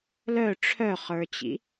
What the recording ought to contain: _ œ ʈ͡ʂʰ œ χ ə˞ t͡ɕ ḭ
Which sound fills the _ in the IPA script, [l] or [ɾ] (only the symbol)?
l